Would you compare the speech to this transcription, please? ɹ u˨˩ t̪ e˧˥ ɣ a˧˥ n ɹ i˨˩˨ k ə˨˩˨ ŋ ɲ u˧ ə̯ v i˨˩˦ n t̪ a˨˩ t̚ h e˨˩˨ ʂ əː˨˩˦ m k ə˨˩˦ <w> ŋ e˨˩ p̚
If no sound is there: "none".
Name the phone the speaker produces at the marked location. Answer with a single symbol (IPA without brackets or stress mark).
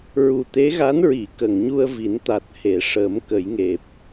j